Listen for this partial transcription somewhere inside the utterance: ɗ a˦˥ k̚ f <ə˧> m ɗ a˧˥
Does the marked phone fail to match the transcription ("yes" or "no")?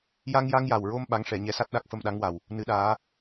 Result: no